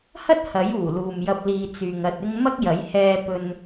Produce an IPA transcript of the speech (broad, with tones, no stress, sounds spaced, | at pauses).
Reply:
h ɐ˥ t̚ h ɐ˨˥ j uː˨˩ l uː˨ m j ɐ˧ p̚ l iː˧ t͡s yː˨ ŋ ɐ˧ t̚ ɪ˥ ŋ m ɐ˥ k̚ j ɐ˨˥ j h ɛː˧ p ɵ˧ n